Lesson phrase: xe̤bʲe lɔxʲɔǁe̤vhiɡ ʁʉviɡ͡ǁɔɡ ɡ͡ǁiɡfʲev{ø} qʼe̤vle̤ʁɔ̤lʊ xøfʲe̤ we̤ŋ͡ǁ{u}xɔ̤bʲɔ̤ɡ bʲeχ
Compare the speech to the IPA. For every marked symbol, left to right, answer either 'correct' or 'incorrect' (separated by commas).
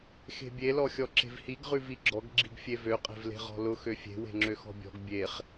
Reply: correct, incorrect